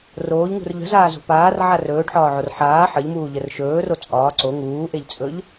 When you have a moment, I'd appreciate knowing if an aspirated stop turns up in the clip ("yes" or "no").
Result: no